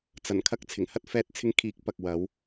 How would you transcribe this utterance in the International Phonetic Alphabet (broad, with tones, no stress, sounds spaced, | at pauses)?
t͡s ɐ˨˩ n kʰ ɐ˧ k̚ t͡sʰ ɪ˨˩ ŋ h ɐ˥ t̚ f ɛː˧ t̚ t͡sʰ ɪ˧ ŋ kʰ iː˨˥ k̚ p ɐ˨ k̚ w ɐ˨˧ w